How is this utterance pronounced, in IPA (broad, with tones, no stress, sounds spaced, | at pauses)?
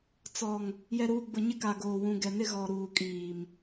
t͡s ɔ˨ ŋ | j ɛ˨ ɾ uː˨ ɡ͡b ʊ˨ ɲ ɪ˦ k a˨ ɡ oː˨ w ũ˨ ɡ ɛ˨ n ɪ˦ ɣ ɔ˨ ɾ uː˨ kʼ iː˨ m